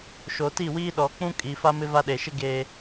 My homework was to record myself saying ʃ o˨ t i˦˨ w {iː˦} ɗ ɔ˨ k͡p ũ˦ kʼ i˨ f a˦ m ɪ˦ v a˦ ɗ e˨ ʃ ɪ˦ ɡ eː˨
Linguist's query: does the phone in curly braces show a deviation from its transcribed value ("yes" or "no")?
no